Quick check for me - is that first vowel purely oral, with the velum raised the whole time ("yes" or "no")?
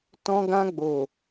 no